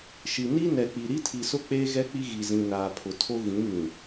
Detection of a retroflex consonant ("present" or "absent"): absent